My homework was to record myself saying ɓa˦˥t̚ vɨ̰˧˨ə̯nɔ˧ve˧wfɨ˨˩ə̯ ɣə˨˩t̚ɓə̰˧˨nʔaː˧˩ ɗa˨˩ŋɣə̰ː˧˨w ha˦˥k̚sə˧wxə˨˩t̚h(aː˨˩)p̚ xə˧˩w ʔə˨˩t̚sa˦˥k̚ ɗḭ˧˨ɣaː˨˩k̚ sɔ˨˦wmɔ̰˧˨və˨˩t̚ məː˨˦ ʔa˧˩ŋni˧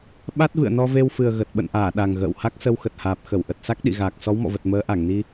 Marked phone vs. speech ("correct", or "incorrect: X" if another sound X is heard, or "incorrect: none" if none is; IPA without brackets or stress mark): correct